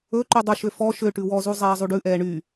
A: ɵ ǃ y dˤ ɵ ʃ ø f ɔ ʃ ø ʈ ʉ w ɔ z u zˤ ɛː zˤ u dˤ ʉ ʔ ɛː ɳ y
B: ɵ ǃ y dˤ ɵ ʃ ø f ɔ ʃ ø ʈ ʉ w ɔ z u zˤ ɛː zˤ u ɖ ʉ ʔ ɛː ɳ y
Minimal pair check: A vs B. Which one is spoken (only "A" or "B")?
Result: B